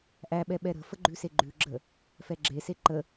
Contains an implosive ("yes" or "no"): yes